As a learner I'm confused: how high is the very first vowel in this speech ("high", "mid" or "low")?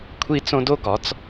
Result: high